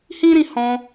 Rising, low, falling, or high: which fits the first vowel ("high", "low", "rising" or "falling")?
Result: high